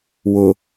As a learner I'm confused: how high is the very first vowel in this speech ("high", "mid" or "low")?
high